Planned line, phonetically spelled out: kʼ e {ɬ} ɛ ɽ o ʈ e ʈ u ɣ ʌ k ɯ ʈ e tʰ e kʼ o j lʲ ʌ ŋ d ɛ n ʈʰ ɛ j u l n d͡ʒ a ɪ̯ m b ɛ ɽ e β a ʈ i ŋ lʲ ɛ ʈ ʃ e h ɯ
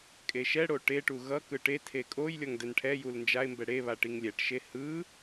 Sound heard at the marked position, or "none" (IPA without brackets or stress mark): ʃ